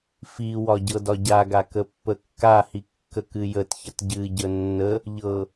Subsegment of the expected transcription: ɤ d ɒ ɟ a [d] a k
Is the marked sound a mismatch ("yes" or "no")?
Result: yes